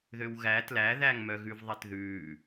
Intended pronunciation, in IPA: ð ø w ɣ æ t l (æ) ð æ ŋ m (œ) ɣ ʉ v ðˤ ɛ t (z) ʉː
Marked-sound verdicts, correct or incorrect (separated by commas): correct, correct, incorrect